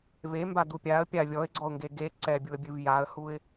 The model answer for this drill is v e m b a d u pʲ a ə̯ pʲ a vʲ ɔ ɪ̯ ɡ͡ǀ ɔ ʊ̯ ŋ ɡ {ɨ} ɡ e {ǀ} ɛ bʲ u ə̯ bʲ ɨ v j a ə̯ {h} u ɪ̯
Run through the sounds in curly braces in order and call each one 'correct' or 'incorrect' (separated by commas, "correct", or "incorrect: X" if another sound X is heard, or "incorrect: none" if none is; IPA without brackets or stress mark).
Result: incorrect: e, correct, correct